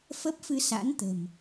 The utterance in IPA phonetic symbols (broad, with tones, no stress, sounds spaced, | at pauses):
f ə˦˥ p̚ f ɨ˧ s a̰˧˥ n t̪ ə̤˨˩ m